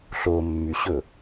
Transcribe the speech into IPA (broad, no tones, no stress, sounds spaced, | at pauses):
ɬ o mː y ɕ ɵ